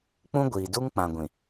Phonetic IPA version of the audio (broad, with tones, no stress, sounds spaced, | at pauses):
k͡p ũ˦ ɡʷ iː˨ d u˦ ŋ k͡p ã˨ ɡʷ ĩ˨